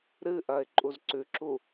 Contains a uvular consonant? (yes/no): no